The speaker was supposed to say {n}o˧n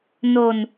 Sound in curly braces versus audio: correct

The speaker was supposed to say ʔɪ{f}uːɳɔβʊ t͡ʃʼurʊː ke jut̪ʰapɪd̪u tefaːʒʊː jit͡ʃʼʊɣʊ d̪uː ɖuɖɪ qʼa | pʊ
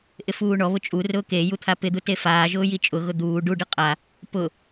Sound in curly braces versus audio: correct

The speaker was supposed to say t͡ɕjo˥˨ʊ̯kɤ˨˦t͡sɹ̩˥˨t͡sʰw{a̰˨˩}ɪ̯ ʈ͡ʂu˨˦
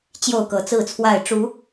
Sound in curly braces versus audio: incorrect: a˥˨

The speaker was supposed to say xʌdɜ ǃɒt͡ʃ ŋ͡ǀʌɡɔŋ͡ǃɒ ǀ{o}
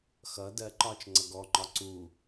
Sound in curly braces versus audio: incorrect: u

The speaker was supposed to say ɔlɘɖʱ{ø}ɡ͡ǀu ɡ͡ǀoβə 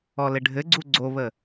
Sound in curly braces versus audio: incorrect: ɘ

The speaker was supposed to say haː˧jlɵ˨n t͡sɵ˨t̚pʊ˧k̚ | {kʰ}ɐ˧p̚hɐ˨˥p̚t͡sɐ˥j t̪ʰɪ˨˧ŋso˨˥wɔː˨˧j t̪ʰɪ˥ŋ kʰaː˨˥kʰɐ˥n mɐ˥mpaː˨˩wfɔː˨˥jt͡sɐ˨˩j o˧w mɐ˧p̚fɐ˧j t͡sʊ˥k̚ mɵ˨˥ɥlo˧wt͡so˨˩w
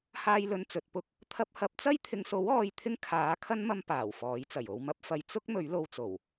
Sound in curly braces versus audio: incorrect: t̪ʰ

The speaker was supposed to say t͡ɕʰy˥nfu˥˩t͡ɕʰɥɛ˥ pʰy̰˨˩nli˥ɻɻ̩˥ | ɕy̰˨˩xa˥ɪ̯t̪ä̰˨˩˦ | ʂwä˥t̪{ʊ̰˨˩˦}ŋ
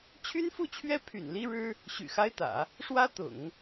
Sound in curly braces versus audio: correct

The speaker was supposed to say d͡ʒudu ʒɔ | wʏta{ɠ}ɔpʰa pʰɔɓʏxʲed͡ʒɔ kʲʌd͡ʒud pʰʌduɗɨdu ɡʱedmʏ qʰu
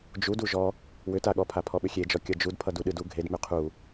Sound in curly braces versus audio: correct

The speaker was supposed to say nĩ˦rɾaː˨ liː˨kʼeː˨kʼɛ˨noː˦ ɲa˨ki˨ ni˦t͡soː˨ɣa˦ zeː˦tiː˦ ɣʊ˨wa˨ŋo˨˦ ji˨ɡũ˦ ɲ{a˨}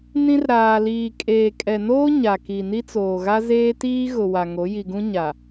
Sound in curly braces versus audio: correct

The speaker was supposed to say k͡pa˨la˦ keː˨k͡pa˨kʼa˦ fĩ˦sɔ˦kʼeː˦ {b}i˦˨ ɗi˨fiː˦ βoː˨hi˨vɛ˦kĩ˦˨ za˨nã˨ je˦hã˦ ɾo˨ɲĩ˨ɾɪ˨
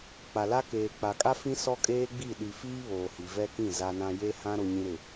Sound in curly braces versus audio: incorrect: ɡ͡b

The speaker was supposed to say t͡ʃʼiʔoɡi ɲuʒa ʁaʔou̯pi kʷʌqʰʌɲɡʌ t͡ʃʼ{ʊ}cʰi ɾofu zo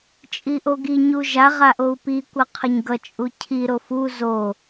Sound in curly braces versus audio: incorrect: u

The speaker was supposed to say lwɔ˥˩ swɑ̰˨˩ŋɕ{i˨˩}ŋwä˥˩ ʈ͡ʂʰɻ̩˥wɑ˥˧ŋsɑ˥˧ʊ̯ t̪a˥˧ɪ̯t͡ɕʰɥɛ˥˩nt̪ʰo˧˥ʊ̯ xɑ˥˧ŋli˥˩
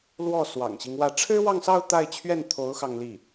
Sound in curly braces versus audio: incorrect: i˦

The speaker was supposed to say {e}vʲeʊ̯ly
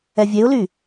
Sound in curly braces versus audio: incorrect: ɛ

